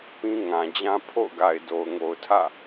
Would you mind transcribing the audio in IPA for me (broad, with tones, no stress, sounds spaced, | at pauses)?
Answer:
p ĩ˦ ŋ ã˨ d͡ʑ ã˦ pʰ o̰˦˨ ʊ̯ ɡ a˨ ɪ̯ d o˨ ʊ̯ ŋ o˨ ʊ̯ tʰ ä̰˦˨